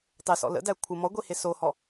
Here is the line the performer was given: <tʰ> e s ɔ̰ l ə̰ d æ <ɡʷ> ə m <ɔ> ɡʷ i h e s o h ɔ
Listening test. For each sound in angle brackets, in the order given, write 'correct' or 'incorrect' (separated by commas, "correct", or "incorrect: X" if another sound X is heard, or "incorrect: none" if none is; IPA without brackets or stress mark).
incorrect: tˤ, incorrect: kʷʰ, correct